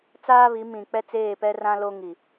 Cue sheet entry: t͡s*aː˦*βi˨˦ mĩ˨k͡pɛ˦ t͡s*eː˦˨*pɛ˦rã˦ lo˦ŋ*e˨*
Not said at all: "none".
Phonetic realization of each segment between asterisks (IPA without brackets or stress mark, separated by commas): aː˦, eː˦˨, i˨